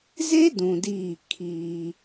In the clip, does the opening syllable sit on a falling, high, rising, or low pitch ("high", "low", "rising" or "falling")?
high